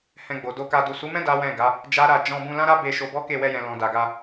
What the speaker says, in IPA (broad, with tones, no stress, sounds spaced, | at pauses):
h ɛ̃˧ ɡ͡b o˨ d o˧ k a˧ d u˨ s u˨˦ m ɛ̃˦ d a˦ w ɛ̃˦˨ ɡ a˨˦ | d͡ʒ a˦ ɾ a˦˨ d͡ʒ ɔ̃˧ b ũ˧ l ã˦ ɾ a˦ b e˧ ʃ o˧ b ɔ˦ k e˦˨ w ɛ˧ j ɛ̃˨ l ɔ̃˨ d a˨ ɡ a˧